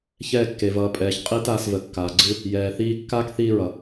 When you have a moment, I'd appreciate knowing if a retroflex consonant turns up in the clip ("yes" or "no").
no